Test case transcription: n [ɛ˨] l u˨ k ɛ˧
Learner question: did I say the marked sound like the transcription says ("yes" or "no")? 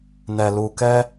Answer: yes